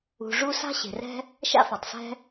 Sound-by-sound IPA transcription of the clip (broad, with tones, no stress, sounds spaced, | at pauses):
ṳ˩ ʐ u˥ s a̤˥ ɕ e̤˩ r ɛ̤˥ | ʃ a̰˥ f a˩ tˤ s ɛ̤˥